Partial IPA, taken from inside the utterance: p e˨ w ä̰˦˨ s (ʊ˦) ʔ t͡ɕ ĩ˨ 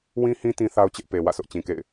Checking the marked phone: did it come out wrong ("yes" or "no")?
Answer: no